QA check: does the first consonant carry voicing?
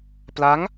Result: no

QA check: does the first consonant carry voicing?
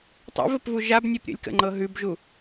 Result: no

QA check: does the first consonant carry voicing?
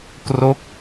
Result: no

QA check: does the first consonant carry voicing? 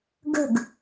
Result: yes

